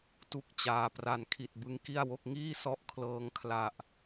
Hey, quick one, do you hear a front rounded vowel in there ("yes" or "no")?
no